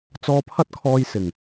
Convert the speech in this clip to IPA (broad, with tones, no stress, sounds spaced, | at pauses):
t͡s ɔː˧ pʰ ɐ˥ t̚ kʰ ɔː˧ j s ɪ˨˩ ŋ